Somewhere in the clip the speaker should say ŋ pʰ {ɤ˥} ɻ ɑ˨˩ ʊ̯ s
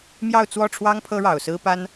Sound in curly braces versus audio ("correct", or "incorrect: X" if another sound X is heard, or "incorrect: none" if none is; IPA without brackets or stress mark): correct